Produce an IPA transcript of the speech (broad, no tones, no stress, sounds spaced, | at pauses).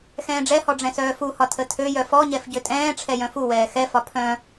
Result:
x ɛ̃ː ɖ͡ʐ ɛ h ɔ ɖ͡ʐ ɛ̃ s œː f u h ɒ tʰ ə tʰ ø j œ f ɔ ɲ ɛ f ɟ ø tʼ ɛ̃ː ʈ͡ʂʰ ɛ j œ̃ f u w ɛː x ɛ f ɒ pʰ œ̃